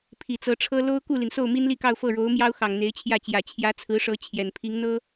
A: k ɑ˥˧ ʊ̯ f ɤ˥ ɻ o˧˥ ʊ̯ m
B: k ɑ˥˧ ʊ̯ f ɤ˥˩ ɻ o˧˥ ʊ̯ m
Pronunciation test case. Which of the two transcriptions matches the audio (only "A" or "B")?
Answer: B